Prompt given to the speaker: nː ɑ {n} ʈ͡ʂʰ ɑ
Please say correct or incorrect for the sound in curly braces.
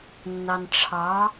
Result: correct